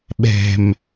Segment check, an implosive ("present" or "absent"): present